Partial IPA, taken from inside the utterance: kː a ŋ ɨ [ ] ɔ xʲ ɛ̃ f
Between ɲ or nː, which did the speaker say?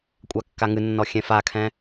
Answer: nː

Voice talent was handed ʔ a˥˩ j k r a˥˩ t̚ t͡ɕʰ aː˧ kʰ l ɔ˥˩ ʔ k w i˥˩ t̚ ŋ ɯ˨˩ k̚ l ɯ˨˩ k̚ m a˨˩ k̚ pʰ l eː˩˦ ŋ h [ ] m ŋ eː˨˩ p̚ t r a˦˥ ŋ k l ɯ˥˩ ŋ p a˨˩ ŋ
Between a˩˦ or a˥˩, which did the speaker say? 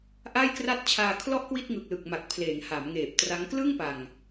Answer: a˩˦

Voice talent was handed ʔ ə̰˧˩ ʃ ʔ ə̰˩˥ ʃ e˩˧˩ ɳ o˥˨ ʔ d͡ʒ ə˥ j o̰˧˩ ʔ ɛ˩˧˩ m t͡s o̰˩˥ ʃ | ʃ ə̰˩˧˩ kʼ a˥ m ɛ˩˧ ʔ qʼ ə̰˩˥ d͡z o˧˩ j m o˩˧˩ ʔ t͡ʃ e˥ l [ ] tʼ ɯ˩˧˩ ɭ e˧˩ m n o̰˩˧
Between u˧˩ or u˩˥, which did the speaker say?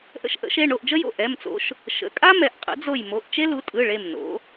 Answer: u˩˥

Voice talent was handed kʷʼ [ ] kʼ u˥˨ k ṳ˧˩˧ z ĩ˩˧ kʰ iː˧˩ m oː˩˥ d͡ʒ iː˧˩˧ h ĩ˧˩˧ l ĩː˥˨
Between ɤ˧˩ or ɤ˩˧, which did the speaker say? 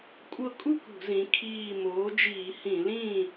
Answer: ɤ˧˩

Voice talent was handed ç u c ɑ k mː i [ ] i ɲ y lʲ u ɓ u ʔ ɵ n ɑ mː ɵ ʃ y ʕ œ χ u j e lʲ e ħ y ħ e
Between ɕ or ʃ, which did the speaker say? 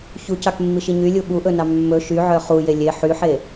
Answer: ʃ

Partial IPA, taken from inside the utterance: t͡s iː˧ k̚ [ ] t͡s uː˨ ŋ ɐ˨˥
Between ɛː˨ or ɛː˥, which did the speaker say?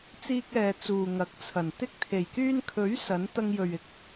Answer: ɛː˨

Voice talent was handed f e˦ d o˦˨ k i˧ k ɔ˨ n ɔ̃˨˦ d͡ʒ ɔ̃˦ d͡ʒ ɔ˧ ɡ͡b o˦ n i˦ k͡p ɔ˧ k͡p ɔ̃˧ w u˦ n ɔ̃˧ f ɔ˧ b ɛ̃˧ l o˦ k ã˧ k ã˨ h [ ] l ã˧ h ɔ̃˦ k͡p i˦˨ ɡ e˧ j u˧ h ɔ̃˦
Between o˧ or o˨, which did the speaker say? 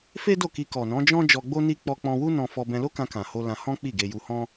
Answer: o˧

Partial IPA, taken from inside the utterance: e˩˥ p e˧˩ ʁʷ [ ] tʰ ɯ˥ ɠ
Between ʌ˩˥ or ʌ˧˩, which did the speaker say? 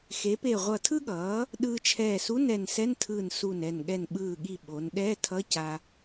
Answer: ʌ˧˩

